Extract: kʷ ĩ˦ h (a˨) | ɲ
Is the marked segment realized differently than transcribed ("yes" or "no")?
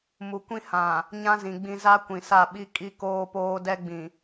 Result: yes